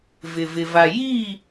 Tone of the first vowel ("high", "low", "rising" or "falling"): low